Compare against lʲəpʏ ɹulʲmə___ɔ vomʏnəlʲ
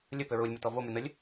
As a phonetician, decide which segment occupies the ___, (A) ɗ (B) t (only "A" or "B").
B